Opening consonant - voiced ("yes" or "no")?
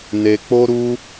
yes